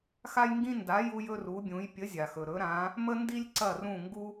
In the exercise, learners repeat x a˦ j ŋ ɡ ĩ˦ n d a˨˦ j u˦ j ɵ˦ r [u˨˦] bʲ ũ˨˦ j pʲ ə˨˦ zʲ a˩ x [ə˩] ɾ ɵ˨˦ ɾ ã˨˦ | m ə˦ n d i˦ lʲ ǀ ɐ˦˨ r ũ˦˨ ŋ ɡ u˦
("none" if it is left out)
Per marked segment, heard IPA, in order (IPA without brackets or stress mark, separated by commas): u˨˦, ɵ˩